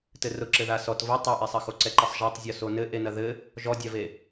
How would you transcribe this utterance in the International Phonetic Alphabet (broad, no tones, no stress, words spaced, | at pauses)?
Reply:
tɘrʊǁɘ ðasɔt və tˤaʔɛsˤɐxo ǀɛǃəsˤʒatˤ zʲɔsonɘ ʔenɐðɘ | ʒɔdʲave